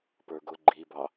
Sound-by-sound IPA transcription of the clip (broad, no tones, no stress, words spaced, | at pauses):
pə˞ɡʊ ɡ͡ǃibɑ